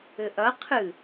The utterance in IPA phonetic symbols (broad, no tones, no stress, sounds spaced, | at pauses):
ɘ ʔ ɐ qʰ ɨ